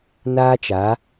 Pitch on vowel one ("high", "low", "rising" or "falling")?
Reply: high